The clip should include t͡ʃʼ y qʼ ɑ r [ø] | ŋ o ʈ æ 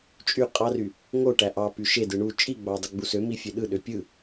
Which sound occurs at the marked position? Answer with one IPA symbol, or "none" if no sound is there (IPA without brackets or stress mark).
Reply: y